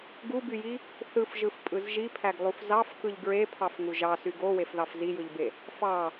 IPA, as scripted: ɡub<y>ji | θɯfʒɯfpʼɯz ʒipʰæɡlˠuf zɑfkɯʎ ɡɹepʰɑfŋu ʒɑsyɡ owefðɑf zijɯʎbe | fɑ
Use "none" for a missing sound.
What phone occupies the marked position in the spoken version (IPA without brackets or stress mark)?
y